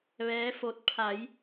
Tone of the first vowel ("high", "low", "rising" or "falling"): rising